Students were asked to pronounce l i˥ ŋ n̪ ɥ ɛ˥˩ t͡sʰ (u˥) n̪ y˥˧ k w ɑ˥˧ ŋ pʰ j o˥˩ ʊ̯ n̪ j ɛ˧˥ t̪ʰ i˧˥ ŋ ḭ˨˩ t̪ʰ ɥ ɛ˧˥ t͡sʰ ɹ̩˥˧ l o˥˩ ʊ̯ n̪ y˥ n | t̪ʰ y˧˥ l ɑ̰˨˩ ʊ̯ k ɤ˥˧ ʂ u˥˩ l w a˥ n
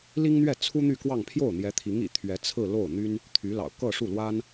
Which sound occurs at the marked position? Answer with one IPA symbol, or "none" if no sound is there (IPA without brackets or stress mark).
u˥